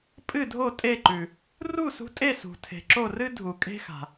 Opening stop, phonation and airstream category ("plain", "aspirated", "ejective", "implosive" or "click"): ejective